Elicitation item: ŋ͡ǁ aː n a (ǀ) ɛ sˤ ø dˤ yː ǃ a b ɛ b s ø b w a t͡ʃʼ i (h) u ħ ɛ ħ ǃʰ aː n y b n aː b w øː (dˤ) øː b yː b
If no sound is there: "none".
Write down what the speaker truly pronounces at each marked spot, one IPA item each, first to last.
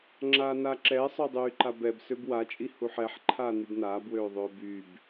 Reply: ǁ, h, ðˤ

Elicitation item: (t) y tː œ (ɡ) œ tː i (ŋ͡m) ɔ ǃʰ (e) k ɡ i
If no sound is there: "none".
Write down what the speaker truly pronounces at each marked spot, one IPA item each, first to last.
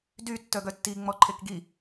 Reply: d, ɡ, ŋ͡m, e

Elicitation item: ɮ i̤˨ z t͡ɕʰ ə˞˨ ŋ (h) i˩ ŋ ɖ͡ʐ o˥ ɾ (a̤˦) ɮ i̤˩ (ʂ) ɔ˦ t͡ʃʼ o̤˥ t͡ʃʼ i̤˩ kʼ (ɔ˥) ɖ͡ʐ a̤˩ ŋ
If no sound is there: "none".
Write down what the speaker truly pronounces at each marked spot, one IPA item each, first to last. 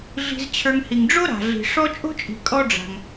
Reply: h, a̤˩, ʂ, ɔ˥

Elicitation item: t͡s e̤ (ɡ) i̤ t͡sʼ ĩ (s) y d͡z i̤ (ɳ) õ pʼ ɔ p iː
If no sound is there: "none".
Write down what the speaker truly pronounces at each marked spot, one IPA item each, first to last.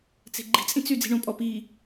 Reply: ɡ͡ǃ, t͡s, ɳ

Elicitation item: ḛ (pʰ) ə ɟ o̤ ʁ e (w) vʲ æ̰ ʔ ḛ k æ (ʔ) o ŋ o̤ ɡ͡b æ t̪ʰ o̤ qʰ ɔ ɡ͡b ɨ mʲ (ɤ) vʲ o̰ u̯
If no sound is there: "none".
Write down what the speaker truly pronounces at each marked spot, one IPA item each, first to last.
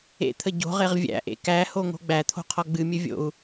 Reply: t̪ʰ, ʁ, h, ɵ

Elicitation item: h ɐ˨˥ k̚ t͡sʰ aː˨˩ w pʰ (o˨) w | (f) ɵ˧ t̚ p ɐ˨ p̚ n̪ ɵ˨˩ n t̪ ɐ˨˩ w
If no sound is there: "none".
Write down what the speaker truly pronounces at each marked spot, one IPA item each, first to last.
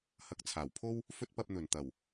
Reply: o˥, f

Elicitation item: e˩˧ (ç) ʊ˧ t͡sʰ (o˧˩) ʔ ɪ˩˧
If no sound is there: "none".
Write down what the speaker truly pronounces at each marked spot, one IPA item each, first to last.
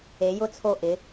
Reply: j, o˧˩

